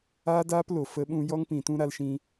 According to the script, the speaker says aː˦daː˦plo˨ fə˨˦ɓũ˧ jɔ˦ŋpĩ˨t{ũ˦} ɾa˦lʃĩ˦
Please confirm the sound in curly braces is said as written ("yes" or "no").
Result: yes